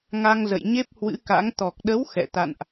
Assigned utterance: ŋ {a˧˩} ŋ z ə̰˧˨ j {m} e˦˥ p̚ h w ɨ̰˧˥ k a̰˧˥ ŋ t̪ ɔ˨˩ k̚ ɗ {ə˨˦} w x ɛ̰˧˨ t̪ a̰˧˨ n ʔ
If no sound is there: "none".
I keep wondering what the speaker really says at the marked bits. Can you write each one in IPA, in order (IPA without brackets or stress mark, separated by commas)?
a˧, ɲ, ə˨˦